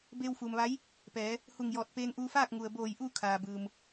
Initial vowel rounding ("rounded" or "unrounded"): unrounded